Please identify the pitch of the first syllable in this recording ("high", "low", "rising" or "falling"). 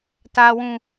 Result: high